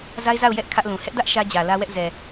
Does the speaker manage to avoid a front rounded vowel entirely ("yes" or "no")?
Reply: yes